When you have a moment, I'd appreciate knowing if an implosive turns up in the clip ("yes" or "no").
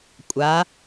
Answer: no